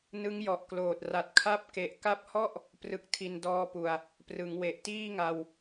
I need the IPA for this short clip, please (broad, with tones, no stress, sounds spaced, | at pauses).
n ɯ˦˥ ŋ j ɔ˨˩ ʔ k l oː˨˩ t̚ r a˨˩ t̚ kʰ a˦˥ p̚ k e˨˩ ʔ k a˦˥ p̚ h ɔ˥˩ ʔ | p r ɯ˦˥ k̚ tʰ i˧ n d ɔː˦˥ p u˨˩ a̯ | p r ɯ˩˦ ŋ w e˨˩ ʔ t iː˥˩ ŋ a˧ w